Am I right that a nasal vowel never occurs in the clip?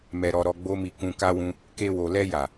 no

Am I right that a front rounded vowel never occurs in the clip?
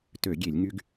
no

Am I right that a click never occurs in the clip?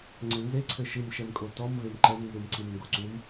no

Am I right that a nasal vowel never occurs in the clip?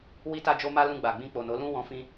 no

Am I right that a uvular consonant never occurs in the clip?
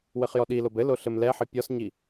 no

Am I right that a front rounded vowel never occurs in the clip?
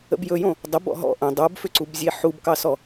no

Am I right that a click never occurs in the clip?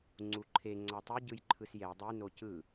no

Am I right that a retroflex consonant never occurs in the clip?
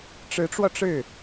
no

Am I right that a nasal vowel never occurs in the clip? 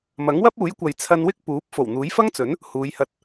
yes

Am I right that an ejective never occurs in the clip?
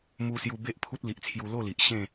yes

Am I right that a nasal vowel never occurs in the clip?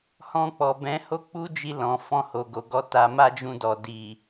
no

